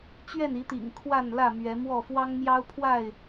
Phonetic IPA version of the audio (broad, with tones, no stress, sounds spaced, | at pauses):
t͡ɕ ɥ ɛ˥˨ n i˨˦ t̪ ḭ˨˩ ŋ kʰ w a˥˨ n l ä˥˨ m ɥ ɛ˨˦ m w ɔ˥˨ f w ɑ˦ ŋ m j ɑ˦ ʊ̯ pʰ w a˥˨ ɪ̯